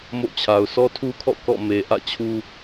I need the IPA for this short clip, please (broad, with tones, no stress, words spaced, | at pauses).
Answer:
mo̰˦˨t͡ɕʰa˨ʊ̯ sʰɔ˦tʰu˦kʰɔ̰˦˨ kɔ̰˦˨me˨ʔä̰˦˨ t͡ɕʰu˦